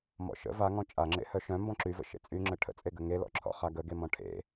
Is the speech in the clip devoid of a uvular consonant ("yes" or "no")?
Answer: no